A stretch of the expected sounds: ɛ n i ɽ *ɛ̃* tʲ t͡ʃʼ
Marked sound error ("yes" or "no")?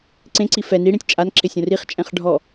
yes